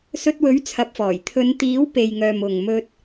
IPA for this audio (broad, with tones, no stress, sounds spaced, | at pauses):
s ɵ˧ t̚ w ɵ˨˥ ɥ t͡sʰ ɐ˨˥ p̚ f ɔː˨˩ j t̪ʰ ɵ˨˧ n t̪ iː˨˥ w p e˨ j ŋ œː˨ m ʊ˨ ŋ m ɵ˧ t̚